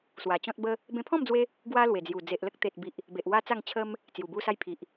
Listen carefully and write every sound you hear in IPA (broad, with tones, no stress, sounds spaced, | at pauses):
s w a˨˩ t͡ɕ ɔ̃˦ t̚ b ə˦ | b ẽ˧ pʰ ɔ̃˥˧ m d͡z w e˧ | ɡ w a˦ l w e˨˩ d͡z j u˨˩ d͡z e˨ ʔ l ə˦ k̚ t̪ e˨ t̚ b i˨ ʔ | b e˨ ʔ w a˦ t͡s a˥˧ ŋ t͡ɕʰ ə˦ m | t͡s j u˨˩ b u˦ s a˦ j pʰ i˨ ʔ